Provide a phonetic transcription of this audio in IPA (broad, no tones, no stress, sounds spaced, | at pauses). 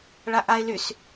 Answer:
ɭ a ʔ a ɪ̯ l y s